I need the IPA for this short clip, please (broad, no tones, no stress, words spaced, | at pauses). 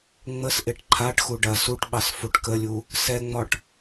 ŋ͡məsʔeʈ ǃʰaʈxu ɖɐ suʈɓɑs fuʈkəlʲu | sɛŋ͡mɒʈ